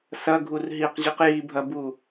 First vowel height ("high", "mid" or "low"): low